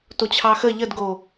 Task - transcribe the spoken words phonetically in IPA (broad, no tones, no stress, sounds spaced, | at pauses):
t o t͡ɕʰ ɑ x ə ʎ ə d ɡ o